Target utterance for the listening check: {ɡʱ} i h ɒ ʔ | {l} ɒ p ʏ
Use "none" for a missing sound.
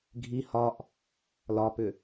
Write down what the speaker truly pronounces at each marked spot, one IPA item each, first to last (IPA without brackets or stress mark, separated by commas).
ɡʱ, l